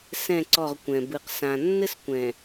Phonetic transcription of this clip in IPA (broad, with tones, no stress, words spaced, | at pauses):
sɛ̃˦˨ǀɔ˦˨ʁkʷɛ̃˨ bɨ˨qsã˨ nːɘ˦skʷɛ̃˨